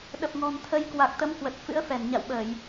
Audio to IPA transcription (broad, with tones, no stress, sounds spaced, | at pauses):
ɗ ə˨˩ p̚ ŋ ɔ̤˨˩ n t̪ʰ ə˧ j k w a˨˩ k̚ t̪ ə˨˦ m k w ə˨˩ t̚ f ɨ̰˧˥ ə̯ f ɛ˧˩ n ɲ a̰˧˨ w ɓ əː˧˩˨ j